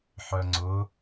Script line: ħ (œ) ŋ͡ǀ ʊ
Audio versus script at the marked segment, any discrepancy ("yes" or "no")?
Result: no